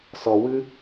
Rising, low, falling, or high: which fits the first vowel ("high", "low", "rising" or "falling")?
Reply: low